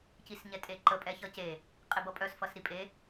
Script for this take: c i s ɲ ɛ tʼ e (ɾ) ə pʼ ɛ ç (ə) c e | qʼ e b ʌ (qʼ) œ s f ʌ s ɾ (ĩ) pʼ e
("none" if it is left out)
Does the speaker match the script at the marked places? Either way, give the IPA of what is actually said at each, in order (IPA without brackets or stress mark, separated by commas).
ǃ, ʌ, pʼ, i